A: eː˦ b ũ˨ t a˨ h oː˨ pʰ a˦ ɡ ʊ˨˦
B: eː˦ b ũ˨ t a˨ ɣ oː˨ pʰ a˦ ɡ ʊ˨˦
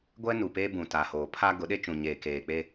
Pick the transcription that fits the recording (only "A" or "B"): A